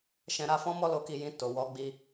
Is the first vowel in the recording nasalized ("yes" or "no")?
yes